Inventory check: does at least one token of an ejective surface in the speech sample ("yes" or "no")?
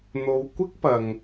no